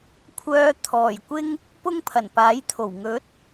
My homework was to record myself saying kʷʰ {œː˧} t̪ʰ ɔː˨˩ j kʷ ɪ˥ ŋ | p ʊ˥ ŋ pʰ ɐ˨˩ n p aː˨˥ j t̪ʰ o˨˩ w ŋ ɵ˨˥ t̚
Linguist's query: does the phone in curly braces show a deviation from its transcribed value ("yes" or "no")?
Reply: no